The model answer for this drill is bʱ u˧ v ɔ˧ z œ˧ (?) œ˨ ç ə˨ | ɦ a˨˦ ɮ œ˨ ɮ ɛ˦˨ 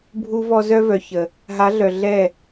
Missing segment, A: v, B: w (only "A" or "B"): A